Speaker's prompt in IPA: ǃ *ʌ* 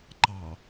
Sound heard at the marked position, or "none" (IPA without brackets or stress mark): ɑ